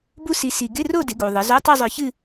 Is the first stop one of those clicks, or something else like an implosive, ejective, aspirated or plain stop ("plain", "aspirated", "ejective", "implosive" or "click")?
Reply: plain